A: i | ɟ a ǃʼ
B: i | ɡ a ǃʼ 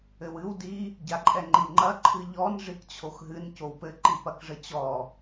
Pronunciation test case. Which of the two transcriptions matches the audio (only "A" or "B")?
A